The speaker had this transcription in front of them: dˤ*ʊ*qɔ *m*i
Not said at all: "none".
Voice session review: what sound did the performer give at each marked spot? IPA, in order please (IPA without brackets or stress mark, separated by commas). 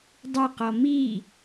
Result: ʊ, m